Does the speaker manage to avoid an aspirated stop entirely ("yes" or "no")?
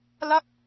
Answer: yes